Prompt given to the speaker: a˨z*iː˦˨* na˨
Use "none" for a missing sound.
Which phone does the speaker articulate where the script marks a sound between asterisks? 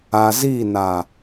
iː˦˨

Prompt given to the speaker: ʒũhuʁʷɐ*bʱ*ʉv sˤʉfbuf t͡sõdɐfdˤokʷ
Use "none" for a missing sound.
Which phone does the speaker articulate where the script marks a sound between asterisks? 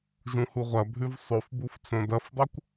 bʱ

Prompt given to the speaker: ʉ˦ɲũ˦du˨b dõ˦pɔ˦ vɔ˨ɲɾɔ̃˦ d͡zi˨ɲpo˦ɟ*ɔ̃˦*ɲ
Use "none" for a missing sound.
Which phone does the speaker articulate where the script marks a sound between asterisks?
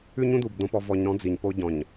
ɔ̃˨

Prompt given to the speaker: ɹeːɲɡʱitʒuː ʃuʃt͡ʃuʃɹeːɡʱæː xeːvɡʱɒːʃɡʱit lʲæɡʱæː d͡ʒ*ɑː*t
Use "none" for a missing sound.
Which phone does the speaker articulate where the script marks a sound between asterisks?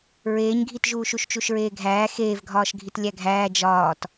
ɒː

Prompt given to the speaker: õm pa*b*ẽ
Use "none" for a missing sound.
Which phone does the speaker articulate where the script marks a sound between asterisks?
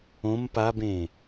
b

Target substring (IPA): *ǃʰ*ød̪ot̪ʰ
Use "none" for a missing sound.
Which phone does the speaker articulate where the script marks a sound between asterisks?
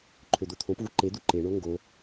ǃʰ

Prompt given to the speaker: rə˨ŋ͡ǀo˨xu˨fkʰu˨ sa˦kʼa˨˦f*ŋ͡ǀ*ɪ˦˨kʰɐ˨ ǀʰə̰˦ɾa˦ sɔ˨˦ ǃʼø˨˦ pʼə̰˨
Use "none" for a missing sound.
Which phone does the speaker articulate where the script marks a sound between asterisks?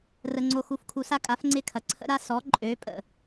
ŋ͡ǀ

